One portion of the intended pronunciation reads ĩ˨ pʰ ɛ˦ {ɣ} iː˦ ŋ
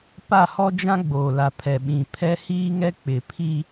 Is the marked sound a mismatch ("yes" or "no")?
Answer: yes